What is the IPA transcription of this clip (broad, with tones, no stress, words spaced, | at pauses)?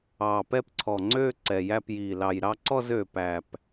ɑː˨˩pɛ˥˧pǀʰɔ˨˩ŋ͡ǀøː˥˧ ǀɛ˨˩jæ˥˧pjiː˨˩ lɑ˨˩j ɾɑ˥˧ǀɔ˥˧zøː˨˩ pæ˨˩p